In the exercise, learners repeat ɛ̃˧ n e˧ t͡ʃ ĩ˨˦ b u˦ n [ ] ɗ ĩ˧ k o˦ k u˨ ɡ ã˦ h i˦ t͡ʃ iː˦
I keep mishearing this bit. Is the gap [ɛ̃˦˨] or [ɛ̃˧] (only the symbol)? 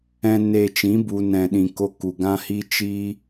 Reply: ɛ̃˧